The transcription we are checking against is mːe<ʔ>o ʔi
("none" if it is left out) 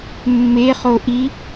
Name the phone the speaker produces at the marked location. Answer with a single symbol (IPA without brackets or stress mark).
χ